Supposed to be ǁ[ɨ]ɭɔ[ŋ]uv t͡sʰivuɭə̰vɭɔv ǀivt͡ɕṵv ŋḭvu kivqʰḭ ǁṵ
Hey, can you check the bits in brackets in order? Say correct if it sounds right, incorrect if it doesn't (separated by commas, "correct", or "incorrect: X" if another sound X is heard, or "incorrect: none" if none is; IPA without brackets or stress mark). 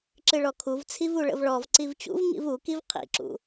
correct, incorrect: kʰ